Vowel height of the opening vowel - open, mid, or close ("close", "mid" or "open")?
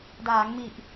open